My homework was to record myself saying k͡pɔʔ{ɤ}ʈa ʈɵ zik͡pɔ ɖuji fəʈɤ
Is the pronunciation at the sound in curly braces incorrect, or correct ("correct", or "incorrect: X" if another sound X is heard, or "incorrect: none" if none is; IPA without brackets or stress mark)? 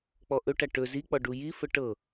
incorrect: ɵ